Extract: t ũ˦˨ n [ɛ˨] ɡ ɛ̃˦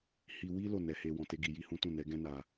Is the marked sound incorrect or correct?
incorrect